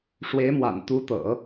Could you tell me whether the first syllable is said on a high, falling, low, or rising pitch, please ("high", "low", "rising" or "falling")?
rising